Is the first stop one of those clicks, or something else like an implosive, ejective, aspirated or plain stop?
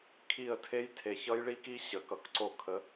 aspirated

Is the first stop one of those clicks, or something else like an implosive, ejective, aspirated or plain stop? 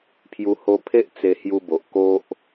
aspirated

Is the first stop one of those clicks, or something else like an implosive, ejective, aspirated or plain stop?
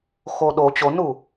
implosive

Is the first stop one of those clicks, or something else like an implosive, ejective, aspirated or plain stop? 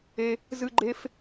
click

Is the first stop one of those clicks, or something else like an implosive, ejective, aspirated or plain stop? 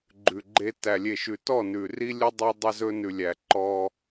click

